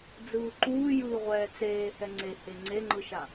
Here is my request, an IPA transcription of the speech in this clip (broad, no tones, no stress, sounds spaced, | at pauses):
d͡z ɯː ǃ uː j ɯː ʁʷ ɛː t͡s eː h ɛ ŋ͡ǀ e h e ŋ͡ǀ e ŋ͡ǃ ɯ ʃ a